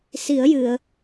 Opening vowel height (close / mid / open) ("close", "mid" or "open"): close